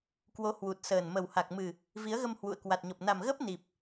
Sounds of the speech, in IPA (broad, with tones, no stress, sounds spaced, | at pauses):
k w o˨˦ h w u˨˩ t̚ s əː˨˩ n m ə˨˩ w h a˨˩ k̚ m ɨ˨˩ | v i˨˦ ə̯ ɣ ə˧ m h w ṵ˧˨ ə̯ k w a˨˩ t̚ ɲ ɔ˨˩ p̚ n a˨˩ m ɣ əː˦˥ p̚ n i˨˩ p̚